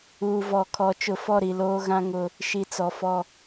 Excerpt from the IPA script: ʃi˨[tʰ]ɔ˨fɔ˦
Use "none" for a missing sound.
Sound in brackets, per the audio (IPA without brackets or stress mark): t͡s